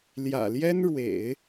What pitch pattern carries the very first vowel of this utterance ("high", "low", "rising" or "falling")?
low